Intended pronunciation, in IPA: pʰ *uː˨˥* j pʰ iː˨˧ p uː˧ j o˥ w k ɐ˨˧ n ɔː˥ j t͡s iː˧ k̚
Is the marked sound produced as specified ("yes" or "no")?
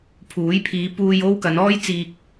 yes